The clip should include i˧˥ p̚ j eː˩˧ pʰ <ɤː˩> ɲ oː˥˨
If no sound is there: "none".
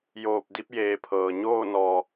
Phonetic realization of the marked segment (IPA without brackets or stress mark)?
ɤː˩